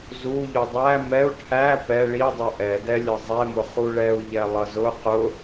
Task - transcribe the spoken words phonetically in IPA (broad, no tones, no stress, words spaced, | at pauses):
zu ʎudˤæ mɛu̯ ʈʰæ pɛ ɭi dˤuʔɛdɛ lʲʌzˤɛmʊ χuɭɛu̯ ʎɛlˠʌzʊ qʊ